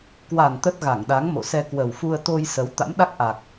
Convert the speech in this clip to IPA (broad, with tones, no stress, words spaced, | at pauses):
kwa˨˩n t̪ə˦˥t̚ɣa˧˩ŋ ɗa˨˦ŋmo̰˧˨sɛ˧ kwə˨˩wfu˧ə̯t̪o˧j sə˨˦w t̪a̰˧˥mɗa˦˥k̚ʔa˨˩k̚